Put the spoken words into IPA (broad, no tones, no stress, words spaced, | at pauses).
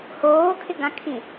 hoːkʰɪɡãkʰĩ